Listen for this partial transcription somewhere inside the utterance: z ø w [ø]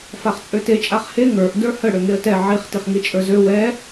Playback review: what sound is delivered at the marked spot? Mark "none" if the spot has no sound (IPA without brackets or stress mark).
ɛ